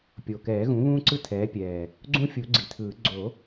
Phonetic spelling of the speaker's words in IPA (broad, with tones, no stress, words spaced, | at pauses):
pʲo˨˩kɛː˨˩˦ɣũ˩˥ βũː˦ǀɯ˦ tʰɛː˩˥pʲɛː˨˩ | ɡ͡ǀũ˦fʲu˨˩˦ ɡ͡ǀi˨˩tʰɯː˨˩˦ ɡ͡ǀo˨˩˦